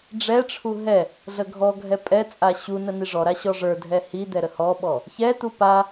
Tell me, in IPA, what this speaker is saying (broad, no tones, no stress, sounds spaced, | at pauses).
ɖ͡ʐ ɛ ʈ͡ʂʰ u ɦ ɛ | ɮ ə ɡʱ ɔ ɡʱ ɛ pʼ ɛ t͡sʼ a ɕ u n ə n i ʐ ɔ ɾ a ɕ ɔ ʐ ə˞ dʱ ɛ h i d̪ ɛ ɾ ə h ɔ ɓ ɔ | ç ɛ t̪ u p a